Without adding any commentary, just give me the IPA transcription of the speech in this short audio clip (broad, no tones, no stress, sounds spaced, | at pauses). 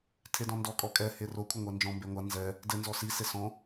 tʰ e d ɔ̃ n d ɔ kʼ ɔ kʼ ɛ h e r o kʷʰ ɘ ŋʷ ɛ n d͡ʒ ɔ̃ m b e ŋʷ a n z ɛ | d ɘ n z ɔ s i s e s ɔ̃